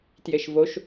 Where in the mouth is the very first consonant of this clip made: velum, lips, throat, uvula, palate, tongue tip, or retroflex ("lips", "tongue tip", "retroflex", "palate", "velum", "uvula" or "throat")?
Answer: tongue tip